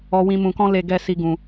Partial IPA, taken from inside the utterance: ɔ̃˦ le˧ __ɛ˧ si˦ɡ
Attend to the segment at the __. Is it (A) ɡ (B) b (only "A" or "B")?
A